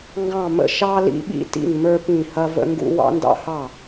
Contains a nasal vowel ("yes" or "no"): yes